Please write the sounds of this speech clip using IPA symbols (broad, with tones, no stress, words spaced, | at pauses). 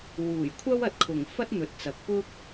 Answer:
wuː˨˩jkʷʰɐ˥w ɐ˨t̚kʰʊ˨˩ŋfɐ˥t̚ n̪ɵ˨t̚ t͡sɐ˨k̚pʊ˥k̚